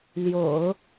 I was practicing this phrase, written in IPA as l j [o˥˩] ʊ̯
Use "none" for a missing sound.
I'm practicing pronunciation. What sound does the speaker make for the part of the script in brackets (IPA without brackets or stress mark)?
o̰˨˩˦